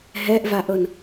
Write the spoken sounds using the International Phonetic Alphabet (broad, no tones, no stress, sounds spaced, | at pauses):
ɦ ɛ ʔ v a ʔ ɤ n